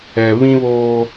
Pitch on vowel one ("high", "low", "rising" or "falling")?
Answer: low